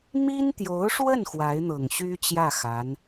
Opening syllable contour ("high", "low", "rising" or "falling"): high